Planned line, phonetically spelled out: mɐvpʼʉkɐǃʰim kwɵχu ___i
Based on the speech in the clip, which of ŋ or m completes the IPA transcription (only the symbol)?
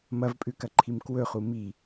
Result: m